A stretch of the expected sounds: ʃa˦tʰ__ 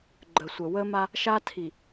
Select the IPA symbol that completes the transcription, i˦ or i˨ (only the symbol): i˨